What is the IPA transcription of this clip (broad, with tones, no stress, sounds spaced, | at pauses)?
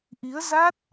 ʔ i˨˦ ə̯ z a˦˥ t̚